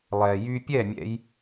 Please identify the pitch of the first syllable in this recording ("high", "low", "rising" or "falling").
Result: low